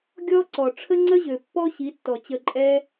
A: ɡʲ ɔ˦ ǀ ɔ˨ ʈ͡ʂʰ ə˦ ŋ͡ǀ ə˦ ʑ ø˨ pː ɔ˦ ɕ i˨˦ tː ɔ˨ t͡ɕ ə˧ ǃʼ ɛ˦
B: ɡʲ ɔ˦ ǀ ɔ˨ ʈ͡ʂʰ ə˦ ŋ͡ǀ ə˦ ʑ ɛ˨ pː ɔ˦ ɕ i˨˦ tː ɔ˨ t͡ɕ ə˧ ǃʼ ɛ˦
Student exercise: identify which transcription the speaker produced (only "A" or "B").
A